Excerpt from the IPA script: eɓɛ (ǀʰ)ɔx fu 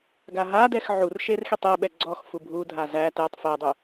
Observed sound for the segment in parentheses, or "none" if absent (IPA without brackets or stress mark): ɡ͡ǀ